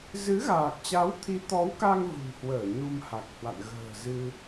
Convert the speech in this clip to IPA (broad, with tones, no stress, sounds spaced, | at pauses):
z ɨ˨˦ ɣ aː˨˩ k̚ t͡ɕ a˨˦ w t̪ʰ i˨˦ t̪ ɔ˨˦ w k a˧ ŋ v ṳ˨˩ n h w əː˧˩ ɲ u˧ m h a˨˩ k̚ h w a̰˧˨ n ɣ ə̤ː˨˩ z ɨ˧